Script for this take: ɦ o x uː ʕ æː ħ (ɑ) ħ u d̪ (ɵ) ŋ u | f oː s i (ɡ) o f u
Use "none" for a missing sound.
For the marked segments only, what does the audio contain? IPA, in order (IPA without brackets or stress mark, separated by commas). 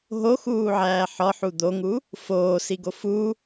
ɒ, o, ɡ